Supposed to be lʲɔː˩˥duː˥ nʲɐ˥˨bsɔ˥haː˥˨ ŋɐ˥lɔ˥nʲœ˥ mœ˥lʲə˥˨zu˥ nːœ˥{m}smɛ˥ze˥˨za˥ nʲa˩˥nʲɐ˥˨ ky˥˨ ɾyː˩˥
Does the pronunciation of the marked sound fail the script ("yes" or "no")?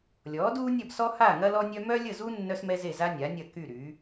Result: yes